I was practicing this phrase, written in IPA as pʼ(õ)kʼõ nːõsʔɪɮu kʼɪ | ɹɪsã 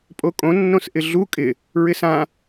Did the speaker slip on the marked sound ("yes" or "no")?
yes